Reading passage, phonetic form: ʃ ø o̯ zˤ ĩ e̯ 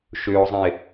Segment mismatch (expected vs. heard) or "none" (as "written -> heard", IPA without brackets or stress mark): none